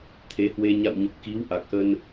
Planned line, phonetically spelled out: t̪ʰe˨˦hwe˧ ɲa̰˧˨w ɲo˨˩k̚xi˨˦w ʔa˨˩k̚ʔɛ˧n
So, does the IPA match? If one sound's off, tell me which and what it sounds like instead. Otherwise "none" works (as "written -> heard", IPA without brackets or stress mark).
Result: ɛ˧ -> ə˧